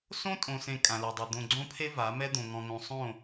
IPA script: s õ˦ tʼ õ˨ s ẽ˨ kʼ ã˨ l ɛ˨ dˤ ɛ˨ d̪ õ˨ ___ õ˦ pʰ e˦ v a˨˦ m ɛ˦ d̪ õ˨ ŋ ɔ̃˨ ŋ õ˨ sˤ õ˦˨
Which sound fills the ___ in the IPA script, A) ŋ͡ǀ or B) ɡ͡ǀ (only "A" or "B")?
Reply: B